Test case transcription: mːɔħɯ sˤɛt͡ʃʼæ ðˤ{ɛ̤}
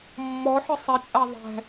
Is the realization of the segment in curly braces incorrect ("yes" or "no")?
no